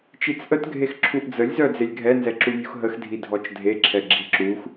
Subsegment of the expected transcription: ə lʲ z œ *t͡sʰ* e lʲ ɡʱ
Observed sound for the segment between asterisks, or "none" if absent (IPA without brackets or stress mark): d͡z